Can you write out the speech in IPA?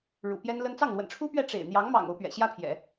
ɻ ṵ˨˩ p j ɛ˥ n l ə˥ n t͡s ɑ˥˩ ŋ l w ə̰˨˩ n ʈ͡ʂʰ u˥ p ɥ ɛ˥˩ ʈ͡ʂ ḛ˨˩ ɪ̯ n̪ j ɑ˧˥ ŋ m ɑ̰˨˩ ŋ o˧˥ ʊ̯ p ɥ ɛ̰˨˩ ɕ j ä˥ pʰ j ɛ̰˨˩˦

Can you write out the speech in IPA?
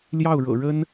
l j ɑ˥˩ ʊ̯ ɻ ɤ̰˨˩ ɻ ə˥ n

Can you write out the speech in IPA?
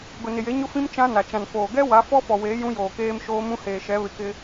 ɡ ʊ˨ n ɪ˨ j e˨˦ ɲ ʊ˦ f ĩ˦ m t͡ʃ ã˦ n a˨ t͡ʃ ã˨ n f oː˨ ɡ ɛ˦ w a˨˦ f ɔ˦ f ɔ˨ w eː˨˦ j ũ˦ j oː˨ k eː˦ m ʃ oː˦ m ũ˦ h eː˨ ʃ ɛ˨˦ β ɪ˨ k ɪ˦

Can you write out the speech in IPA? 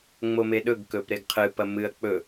ŋ͡m o m e ɗ ɵ ɡ k ɵ p ɾ e ɡ qʰ ɨ p ɐ m ɨ ɐ̯ k͡p ɵ

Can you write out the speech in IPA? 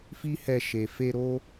f i˦ h ɛ˧ ʃ e˨ f e˧ ɾ o˦

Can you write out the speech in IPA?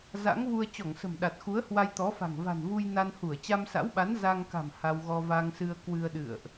z a̰˧˥ ŋ v u˧ ə̯ t͡ɕ ɔ˧˩ ŋ s ə̤˨˩ m ɗ a˨˩ t̚ x u˨˦ ə̯ h w a˧ j t̪ ɔ˨˦ f a̤˨˩ ŋ v a̤˨˩ n v u˧ j n a˧ n h u˧˩ ə̯ t͡ɕ a˧ m s a̰˧˥ w ɓ a˨˦ n z a˧ ŋ k a̤˨˩ m h a˧ w ɣ ɔ˧ v a˧ ŋ s ɨ˧ ə̯ k w ɨ˧ ə̯ ɗ ɨ̰˧˨ ə̯ ʔ

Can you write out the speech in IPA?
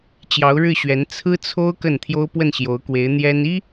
t͡ɕ j ɑ˧˥ ʊ̯ ɻ ɻ̩˥˩ ɕ ɥ ɛ˧˥ n t͡sʰ ɹ̩˥ t͡sʰ o˥ ʊ̯ k ə˥˩ n t̪ʰ j o˥ ʊ̯ p w ə˥˩ n ɕ j o˧˥ ʊ̯ k w e˧˥ ɪ̯ n̪ j ɛ˥ n i˥

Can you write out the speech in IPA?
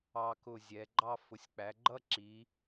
ɑ˧ k ʊ˧˩ zʲ ɛ˩˧ ɡ͡ǃ ɑ˥˧ f ʊ˩˧ sʲ k͡p æ˩˧ ɡ͡ǃ ʌ˥˧ ǁ i˩˧

